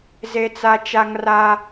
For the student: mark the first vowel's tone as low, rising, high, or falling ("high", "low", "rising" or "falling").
high